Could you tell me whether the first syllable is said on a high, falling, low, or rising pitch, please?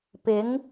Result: rising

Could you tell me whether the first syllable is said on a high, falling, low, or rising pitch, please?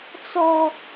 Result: high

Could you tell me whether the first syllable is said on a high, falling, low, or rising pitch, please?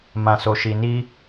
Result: low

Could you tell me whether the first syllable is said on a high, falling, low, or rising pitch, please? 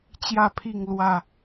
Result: falling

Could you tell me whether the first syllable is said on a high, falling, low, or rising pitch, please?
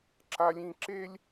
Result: high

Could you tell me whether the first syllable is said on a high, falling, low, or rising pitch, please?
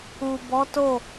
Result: low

